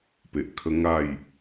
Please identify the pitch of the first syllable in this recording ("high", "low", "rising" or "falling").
low